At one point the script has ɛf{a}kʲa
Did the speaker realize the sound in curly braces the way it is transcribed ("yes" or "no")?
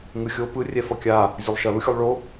no